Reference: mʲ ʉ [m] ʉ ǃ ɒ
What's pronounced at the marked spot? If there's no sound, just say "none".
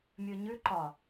ɲ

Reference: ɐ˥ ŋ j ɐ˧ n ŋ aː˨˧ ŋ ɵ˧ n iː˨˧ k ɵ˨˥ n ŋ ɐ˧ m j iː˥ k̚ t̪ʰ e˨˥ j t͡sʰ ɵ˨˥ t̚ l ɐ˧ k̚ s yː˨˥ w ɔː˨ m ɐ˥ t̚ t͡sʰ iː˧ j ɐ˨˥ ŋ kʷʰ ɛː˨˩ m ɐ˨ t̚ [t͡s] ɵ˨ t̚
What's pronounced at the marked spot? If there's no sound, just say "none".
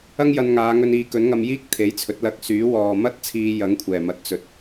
t͡s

